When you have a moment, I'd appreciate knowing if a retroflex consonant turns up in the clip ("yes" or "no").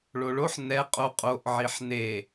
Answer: yes